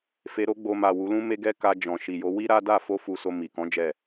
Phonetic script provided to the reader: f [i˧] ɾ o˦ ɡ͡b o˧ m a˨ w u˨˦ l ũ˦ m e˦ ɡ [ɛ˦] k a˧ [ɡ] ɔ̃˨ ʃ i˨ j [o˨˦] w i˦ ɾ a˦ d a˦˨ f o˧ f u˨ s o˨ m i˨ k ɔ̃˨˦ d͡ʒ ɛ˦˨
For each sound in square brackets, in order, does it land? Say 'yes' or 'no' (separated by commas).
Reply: no, yes, no, yes